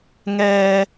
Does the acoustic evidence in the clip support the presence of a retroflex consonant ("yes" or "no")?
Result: no